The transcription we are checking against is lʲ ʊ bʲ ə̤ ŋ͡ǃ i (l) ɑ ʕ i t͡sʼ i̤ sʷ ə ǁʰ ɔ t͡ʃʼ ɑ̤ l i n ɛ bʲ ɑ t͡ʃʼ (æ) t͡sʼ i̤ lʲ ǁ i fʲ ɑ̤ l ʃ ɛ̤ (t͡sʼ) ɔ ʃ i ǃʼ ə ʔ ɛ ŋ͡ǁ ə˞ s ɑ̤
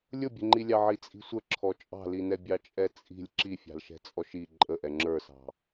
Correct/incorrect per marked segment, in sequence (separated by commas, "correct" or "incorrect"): incorrect, incorrect, correct